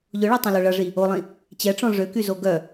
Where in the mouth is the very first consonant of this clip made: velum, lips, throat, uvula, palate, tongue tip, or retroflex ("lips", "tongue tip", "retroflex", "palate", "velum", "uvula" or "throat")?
palate